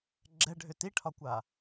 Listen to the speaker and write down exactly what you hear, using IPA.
ɡ͡ǁ ɛ ɖʱ ʏ t i ʈʰ ɒ kʷ a

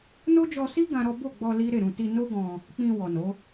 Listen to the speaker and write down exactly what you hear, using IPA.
n o˦ d͡ʒ ɔ˧ s i˦ ɡ ã˦ ɾ ɔ˦ b o˦˨ ɡ͡b ɔ˧ l i˦ ɾ e˦˨ ɾ ũ˧ t i˧ n o˦ ɡ ɔ̃˧ | k͡p ĩ˧ w ɔ˨ n o˨˦

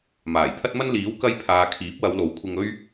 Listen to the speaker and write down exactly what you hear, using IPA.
m aː˨˩ j t̪ʰ ɐ˥ t̚ m ɐ˥ n l iː˨˥ w k ɐ˧ j pʰ aː˨ kʰ iː˨˥ p̚ w ɐ˨˧ w l o˨˥ w kʷʰ ɪ˧ ŋ ɵ˥ ɥ

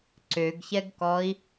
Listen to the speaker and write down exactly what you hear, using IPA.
ǀ ø ɡ ç ɛ ɡ k ɔ i̯

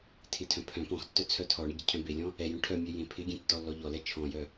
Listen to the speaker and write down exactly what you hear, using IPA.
tʰ ɪ tʰ œ̃ pʰ œ̃ p ɔ̃ x tː œ t͡sʰ œ tʰ ɔ ɳ ɪ ɟ ɪ cʰ œ̃ b e lʲ ɔ̃ | ɛ j œ̃ ʈʰ œ mʲ œ j ẽ pʰ ɪ ɡʲ ẽ tː ɔ lː ɔ ʎ ɔ l ɛ t͡ʃʰ ɔ̃ j œ

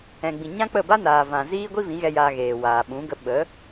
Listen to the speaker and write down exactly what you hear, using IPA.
ɛ̃˨ ɡ͡b ĩ˨ ɲ ã˦ k͡p ə˦˨ b a˦ n aː˨ v ã˨ z iː˦ ɡʷ i˦ v ĩ˨˦ ɣ ɛ˧ j aː˧ ɣ eː˨ w aː˨ ɓ ũ˨˦ ɡ ə˧ ɓ ə˨˦

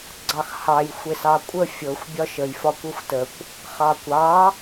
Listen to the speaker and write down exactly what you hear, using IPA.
ɡ͡ǀ ɑ x h ɑ j xʷ e s ɑ kʷʼ ə fʲ ɤ xʷ bʲ ɒ ʃ ə j f ɒ kʷ ɤ xʷ t ə kʷ | χ ɑ kʷ ɑ

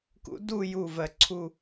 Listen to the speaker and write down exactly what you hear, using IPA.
k ṵ˨˩˦ d uː˥˧ j uː˧˩ v ɜ˨˩˦ ǀʰ u˧˩

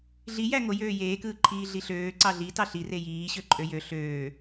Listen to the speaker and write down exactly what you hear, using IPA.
ɮ i j æ ŋ o j øː j eː k ɯː ǃʰ iː ɮ i ɬ øː ǀ ɑ ɮ i t ɑ ɬ i r e j iː ɕ ø ǃʼ ø j ø ɬ øː

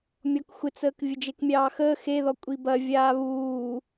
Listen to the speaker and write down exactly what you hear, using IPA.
mʲ ɔ k xʷ ɪ t͡s əː k vʲ ə d͡ʒ e k mʲ ɑː x əː x e ð ɔ kʷʼ i b ɐ vʲ aː β uː

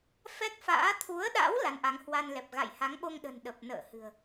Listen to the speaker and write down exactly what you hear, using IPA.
f ɛ˦˥ k̚ f a̰ː˧˥ t̪ʰ u˨˦ ə̯ ɗ a̰˧˥ w l a˨˦ n ʔ a˨˦ ŋ h w a˧ n l ɛ˨˩ p̚ ɣ a̰˧˨ j h a˨˦ ŋ ɓ o˧ ŋ ɗ ə̤˨˩ n ɗ ə˨˩ p̚ n ə̰ː˧˨ h ɨ̤˨˩ ə̯

